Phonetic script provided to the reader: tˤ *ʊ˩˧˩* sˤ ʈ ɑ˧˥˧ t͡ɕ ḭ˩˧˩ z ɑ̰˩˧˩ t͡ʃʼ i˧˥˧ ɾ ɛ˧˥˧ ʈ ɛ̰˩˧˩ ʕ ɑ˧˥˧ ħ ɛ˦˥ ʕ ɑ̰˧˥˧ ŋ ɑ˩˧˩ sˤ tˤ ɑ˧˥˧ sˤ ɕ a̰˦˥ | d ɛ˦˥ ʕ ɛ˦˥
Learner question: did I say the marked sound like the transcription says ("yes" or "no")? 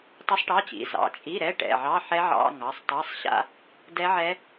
no